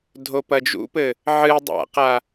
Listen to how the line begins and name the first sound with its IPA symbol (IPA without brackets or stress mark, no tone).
dʱ